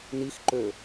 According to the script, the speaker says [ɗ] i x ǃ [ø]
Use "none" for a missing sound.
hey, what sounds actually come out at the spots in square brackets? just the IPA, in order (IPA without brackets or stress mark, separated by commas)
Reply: n, ø